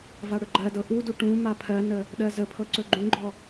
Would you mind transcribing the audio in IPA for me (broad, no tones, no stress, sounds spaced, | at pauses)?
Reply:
v a ɽ ɵ ɡ͡ǃ ɜ d ɤ ʔ u d u ʈ ũ m a pʰ ɜ n ə | ɗ ɜ z ə pʰ ɤ ǀ ɵ ɡ͡ǃ ũ ɡ͡ǃ ɔ